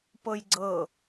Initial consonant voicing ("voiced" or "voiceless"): voiceless